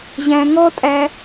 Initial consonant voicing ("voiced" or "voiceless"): voiced